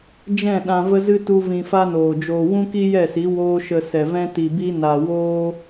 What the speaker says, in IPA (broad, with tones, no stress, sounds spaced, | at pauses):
d͡ʒ ɛ̃˦˨ ɗ ã˧ v ə˦ z ɨ˦ t u˦ v ĩ˧ f a˦ n oː˨ d͡ʒ oː˧ w ũ˦ k i˦ j ɛ˦˨ s i˨˦ w oː˦ ʃ ə˧ s ɛ˨ v ɛ̃˦ t i˨ b i˦ n a˧ w oː˦